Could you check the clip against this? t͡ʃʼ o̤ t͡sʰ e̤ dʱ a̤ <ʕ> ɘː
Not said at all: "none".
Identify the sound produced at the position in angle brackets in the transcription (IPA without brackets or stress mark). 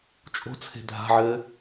ʕ